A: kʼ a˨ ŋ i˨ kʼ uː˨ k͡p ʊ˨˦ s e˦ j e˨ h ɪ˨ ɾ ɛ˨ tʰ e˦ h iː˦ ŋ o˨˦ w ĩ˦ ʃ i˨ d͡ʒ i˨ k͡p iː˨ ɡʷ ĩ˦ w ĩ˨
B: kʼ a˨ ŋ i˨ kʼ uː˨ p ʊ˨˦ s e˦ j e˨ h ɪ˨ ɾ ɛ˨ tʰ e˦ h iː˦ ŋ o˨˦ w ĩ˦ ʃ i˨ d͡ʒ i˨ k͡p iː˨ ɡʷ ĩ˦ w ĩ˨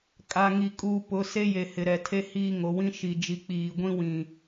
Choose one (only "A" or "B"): B